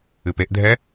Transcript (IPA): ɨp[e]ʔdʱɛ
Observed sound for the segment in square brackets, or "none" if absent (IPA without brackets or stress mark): e